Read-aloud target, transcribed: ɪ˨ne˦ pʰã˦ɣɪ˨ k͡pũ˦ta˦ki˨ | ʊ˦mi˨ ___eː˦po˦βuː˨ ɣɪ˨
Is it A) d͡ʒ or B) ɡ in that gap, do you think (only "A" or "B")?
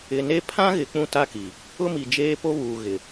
A